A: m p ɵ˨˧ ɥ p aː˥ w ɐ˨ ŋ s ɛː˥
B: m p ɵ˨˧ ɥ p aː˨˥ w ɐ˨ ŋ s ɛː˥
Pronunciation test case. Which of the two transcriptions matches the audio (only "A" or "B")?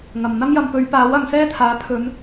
B